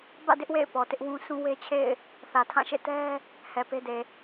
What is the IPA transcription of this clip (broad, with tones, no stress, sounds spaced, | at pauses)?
b ä̰˦˨ d ɪ˦ ʔ w ḛ˦˨ ɪ̯ p ɔ˨ t ɪ˦ ʔ w ũ˦ s ũ˦ w e˦ t͡ɕʰ ḛ˦˨ ɪ̯ | θ ä˨ tʰ ã˦˨ ʃ ḛ˦˨ t ɛ˦ | h ɛ˨ p e˦ d e˨